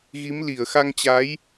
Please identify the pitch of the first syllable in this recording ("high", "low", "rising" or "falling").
rising